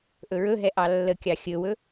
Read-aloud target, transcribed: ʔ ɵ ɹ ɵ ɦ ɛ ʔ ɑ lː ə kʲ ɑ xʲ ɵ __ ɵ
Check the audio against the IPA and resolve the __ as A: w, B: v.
A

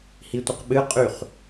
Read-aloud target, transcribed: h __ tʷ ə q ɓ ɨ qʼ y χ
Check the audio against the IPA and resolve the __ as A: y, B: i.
B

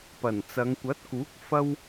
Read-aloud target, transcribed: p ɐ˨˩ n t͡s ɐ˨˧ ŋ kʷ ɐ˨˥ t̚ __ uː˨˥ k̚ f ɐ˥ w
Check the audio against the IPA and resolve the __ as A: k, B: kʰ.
A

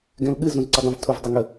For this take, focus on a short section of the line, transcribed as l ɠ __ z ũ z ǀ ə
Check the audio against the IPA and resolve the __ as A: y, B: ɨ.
B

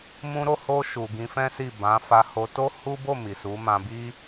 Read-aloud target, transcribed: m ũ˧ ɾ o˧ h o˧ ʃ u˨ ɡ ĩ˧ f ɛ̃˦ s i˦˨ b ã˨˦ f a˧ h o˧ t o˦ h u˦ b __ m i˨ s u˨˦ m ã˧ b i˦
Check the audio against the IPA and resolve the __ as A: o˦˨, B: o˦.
A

